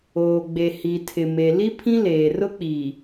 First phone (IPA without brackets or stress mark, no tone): oː